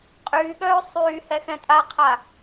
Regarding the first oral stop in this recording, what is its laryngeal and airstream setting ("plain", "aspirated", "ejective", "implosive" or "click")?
ejective